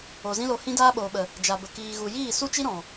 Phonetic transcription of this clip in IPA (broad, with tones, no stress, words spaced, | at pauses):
o˨zĩ˦lo˧ hĩ˦daː˦ɓoː˨ɓə˨ | d͡ʒa˨bə˨ kiː˨ɣu˨jiː˦˨ su˦t͡ʃi˦ ɾɔ̃˨